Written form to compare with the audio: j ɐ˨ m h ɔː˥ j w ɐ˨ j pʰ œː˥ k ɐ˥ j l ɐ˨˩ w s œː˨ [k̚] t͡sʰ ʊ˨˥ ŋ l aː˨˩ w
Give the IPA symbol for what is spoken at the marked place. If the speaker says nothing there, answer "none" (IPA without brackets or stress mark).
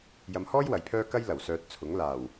t̚